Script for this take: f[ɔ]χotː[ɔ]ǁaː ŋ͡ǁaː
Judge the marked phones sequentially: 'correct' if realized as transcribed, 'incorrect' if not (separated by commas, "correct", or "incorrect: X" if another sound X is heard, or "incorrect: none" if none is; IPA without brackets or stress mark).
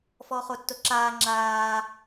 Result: correct, incorrect: o